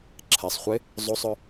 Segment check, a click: present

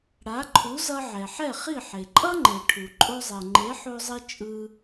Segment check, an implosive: absent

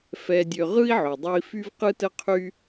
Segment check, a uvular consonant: present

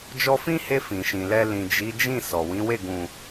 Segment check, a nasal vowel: present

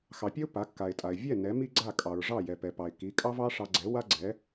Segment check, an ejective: present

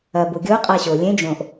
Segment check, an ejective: present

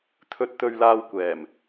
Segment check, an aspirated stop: present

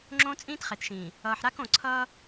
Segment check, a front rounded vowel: absent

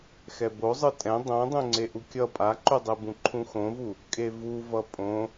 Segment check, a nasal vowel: present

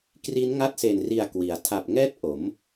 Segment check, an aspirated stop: present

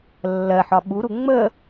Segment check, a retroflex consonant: absent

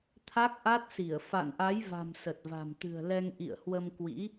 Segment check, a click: absent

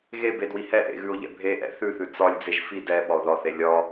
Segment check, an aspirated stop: absent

